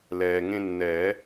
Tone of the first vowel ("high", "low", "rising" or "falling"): low